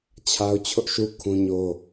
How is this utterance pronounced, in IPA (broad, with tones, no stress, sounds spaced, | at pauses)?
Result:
t͡ɕʰ a˦ ʊ̯ t͡ɕʰ ʊ˦ ʔ ʃ u˦ kʰ ũ˦ ɲ o˦